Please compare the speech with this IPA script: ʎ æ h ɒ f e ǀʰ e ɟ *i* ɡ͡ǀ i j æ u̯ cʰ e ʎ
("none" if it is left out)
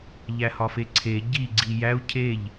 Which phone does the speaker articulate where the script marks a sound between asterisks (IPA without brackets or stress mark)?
i